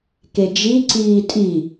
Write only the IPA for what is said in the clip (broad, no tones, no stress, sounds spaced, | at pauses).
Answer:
k e d͡ʒ i ǀ iː tʼ i